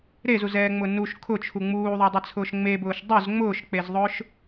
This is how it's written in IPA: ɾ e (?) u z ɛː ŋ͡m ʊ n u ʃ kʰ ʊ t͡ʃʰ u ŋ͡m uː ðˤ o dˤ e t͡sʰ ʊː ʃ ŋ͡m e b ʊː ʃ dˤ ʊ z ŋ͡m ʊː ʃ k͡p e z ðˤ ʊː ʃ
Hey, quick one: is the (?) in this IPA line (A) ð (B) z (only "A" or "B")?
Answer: B